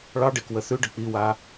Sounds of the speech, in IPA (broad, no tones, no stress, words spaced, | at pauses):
ɭɑɖekwə θʉɖə k͡piwa